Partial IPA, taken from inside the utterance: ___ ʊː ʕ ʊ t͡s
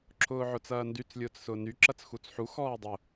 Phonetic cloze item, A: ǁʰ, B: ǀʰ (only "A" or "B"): A